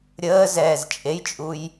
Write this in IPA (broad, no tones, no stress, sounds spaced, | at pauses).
ɾʲ əː z ɛː z t͡ʃʼ e j t͡ʃʼ u j